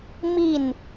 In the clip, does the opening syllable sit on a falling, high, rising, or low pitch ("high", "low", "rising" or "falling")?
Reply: falling